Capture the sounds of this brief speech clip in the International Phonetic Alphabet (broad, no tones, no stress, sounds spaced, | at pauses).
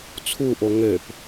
t͡sʰ u ʔ o ŋ ø p